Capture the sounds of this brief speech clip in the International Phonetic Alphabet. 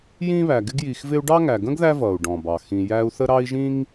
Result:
j ĩ˥ β æ˨ ɡ ɪ˦ ɡ j i˨ x v ɪ˦ u̯ ɖ ɑ˥ ŋ æ˨ ɡ ə̃˥ ɡ ð æ˦ v ʌ˩ u̯ ɖ ɔ̃˩ b ɑ˩ x ĩ˨ j æ˦ u̯ θ ə˥ ɾ ɑ˥ i̯ ʒ ĩ˥ ŋ

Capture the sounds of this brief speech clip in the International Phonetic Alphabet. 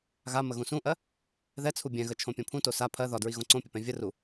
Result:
ɣ a m ə ɣ ũ s ũ ʔ ɜ | ð ɛ t͡sʰ u bʲ ɛ̃ ɣ ə t͡ʃʰ õ pʲ õ pʰ ũ t o s a pʰ ɜ ð ɒ d ɹ i ɣ õ ǀ õ pʲ ə p ɛ̃ vʲ ə r u

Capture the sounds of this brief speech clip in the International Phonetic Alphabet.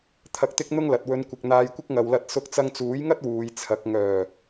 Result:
t̪ʰ ɐ˧ k̚ t̪ ɪ˥ k̚ n̪ ʊ˥ ŋ l ɐ˨ t̚ w ɵ˨˧ n kʷ ɪ˨ k̚ n̪ aː˧ j kʷ ɪ˥ k̚ ŋ ɐ˨ w l ɐ˧ t̚ s ʊ˧ k̚ t͡s ɐ˧ ŋ t͡s uː˨˥ j ŋ ɐ˥ t̚ w uː˨˧ j t͡sʰ ɐ˨˥ k̚ ŋ œː˨˩

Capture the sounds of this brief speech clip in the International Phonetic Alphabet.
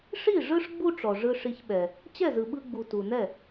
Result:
ʂ i˥˩ ʐ ɯ˥ ʂ ɡ͡b u˥ ʈ͡ʂ ɔ˩ ʐ ɯ˧ ʂ i˧ ç ɓ ɛ˩ | t͡ɕ ɛ˥˩ z ɯ˩ ɓ ɯ˧ ɡ͡b u˩ t u˩ n ɛ˥˩

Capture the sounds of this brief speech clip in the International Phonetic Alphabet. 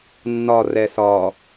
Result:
nː ɒ r ɛ s ɒ

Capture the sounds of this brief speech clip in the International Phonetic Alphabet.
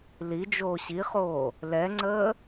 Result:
l i d͡ʒ oː ɕ i χ oː | l ɛ ŋ͡ǀ əː

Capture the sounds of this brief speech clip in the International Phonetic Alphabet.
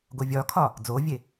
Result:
ɡ o vʲ ɒ kʰ ɒ | d͡z oː vʲ e

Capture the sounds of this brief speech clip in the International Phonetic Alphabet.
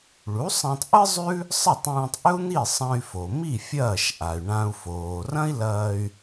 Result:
ɭ u˩˥ sˤ ã˧ tˤ ʔ ɨ˥ zˤ ʉ˥ | sˤ ɐ˥˩ tˤ ũː˧ tˤ ʔ ɵ˥ u̯ n̪ i˥˩ sˤ ɐ̃˧ y̯ f o˩ m i˥˩ fʲ ɐː˥˩ ʃ ʔ a˩ y̯ ɳ ã˧ u̯ f oː˩ r ɐ̃˥ i̯ l ɐː˧ y̯

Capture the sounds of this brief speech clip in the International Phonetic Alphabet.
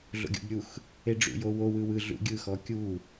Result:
ɮ o̰ ɡʲ o̰ b ɾʲ u x | e ɖ͡ʐ ṵ j o w o w ɯ w ɯ ɮ ṵ ɡʲ ɯ x ɔ kʲ u

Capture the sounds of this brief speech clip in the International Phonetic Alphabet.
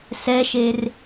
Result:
s ɛ ʃ e r

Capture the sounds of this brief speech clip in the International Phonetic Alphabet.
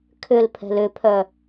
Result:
kʰ ʏ l pʰ ɛ̤ l ʏ pʰ œ

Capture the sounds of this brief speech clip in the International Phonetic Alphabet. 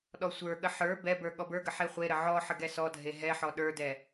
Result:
ɗ ɔ sʷ ə˞ ɠ ə ħ ə˞ b ɛ b ə˞ ɠ ɔ b ə˞ ɡ ə ħ e χʷ e ɾ ə ʕ ɔ ħ ə ɡ ɛ s ɔ dʱ e ɦ ɛ ħ ɔ ɗ ə˞ d ɛ

